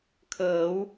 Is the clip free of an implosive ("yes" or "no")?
yes